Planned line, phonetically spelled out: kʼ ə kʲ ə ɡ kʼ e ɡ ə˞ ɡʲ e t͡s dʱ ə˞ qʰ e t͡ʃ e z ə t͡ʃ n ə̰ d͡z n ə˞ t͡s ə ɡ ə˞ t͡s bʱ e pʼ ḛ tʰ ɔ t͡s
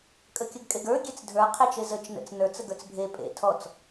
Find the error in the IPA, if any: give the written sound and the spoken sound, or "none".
d͡z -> t͡s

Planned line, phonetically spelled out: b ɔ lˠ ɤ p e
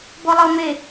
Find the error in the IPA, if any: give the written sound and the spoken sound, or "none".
p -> m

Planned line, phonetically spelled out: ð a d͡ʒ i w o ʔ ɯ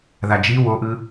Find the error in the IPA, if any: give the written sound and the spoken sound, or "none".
none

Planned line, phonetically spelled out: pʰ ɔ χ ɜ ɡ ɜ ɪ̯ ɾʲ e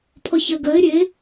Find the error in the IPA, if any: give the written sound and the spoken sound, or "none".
χ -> ç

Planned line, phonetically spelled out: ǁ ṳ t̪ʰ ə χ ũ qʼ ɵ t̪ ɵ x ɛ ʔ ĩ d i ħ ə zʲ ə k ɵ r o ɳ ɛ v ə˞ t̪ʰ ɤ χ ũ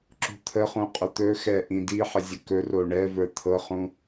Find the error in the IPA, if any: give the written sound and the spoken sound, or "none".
none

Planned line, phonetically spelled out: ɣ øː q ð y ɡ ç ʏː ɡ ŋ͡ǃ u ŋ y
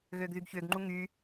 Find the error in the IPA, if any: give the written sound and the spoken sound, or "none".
q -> ɡ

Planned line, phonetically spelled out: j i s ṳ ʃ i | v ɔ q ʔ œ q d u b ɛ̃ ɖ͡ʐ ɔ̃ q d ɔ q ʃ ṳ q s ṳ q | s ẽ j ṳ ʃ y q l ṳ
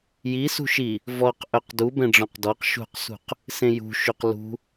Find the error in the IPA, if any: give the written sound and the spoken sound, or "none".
none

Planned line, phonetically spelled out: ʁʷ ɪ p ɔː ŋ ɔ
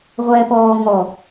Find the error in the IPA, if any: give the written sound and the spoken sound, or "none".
ɪ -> ɛ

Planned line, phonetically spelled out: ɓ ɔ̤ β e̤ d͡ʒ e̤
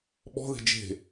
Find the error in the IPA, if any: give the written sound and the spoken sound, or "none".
β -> ð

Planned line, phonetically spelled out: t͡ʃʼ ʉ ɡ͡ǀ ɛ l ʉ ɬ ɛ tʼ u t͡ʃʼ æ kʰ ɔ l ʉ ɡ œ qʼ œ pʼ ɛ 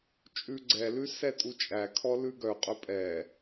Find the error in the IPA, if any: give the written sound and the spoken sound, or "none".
ɬ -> s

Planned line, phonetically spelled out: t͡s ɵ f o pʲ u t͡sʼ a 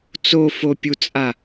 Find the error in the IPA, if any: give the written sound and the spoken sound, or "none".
ɵ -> o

